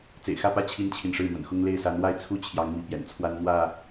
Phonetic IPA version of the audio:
t͡s ḛ˨˩ ɪ̯ x ä˥˨ p ä˥˨ t͡ɕʰ i˦ n t͡ɕʰ i˨ n ʂ ɻ̩˥˨ m ə̰˨˩ n x ʊ˦ ŋ l e˥˨ ɪ̯ s a˨˦ n w a˥˨ ɪ̯ t͡sʰ u˦ t͡ɕʰ j ɑ˨˦ ŋ m i˨˦ p j ɛ̰˨˩ n t͡sʰ w a˦ n n̪ w ä˥˨

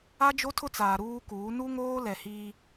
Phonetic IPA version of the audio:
a˦ d͡ʒ o˦ tʰ ʊ˦ t͡s aː˨ ɾ uː˦ k uː˨˦ n u˦ ŋ oː˦ l ɛ˨ h iː˦

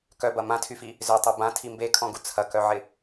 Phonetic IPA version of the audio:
k œ b ɐ m ã tʰ y f i | z ø tˤ ø b ã tʰ i m b e kʰ ɔ̃ ɡ u t͡sʰ ɐ k œ ʕ ɪ

